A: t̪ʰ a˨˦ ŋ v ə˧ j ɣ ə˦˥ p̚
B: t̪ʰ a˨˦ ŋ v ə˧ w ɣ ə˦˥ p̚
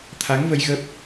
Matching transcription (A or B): A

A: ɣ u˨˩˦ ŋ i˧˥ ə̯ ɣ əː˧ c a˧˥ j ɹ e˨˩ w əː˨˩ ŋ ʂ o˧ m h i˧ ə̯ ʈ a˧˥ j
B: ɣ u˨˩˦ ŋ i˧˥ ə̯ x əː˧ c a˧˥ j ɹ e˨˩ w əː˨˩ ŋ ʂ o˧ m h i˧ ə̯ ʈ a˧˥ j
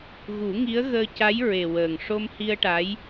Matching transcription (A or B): A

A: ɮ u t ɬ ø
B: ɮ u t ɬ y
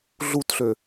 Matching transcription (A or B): A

